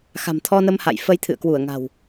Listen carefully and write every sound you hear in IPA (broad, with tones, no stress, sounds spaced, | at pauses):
x a̤˨˩ m t̪ʰ ɔ˧ n ə˧ m h a̰˧˨ j f ə˧ j t̪ʰ ɨ̰˧˨ ə̯ k w u˧˩ ə̯ ŋ a̤˨˩ w